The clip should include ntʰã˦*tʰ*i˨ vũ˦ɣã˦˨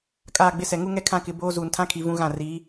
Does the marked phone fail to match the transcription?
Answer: yes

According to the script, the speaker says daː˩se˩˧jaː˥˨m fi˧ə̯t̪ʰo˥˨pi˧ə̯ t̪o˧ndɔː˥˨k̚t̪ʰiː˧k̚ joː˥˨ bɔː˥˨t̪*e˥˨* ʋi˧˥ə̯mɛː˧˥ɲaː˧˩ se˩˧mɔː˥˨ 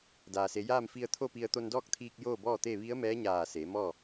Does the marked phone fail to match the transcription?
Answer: no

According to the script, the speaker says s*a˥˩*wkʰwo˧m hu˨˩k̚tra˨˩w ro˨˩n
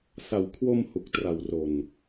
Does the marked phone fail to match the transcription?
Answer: yes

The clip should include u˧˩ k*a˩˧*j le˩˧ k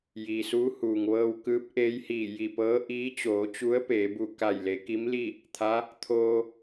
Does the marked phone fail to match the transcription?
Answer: yes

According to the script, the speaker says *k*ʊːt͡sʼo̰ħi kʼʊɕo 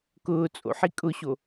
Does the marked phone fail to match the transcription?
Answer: no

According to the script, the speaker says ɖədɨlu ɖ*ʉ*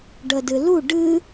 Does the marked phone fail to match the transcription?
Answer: yes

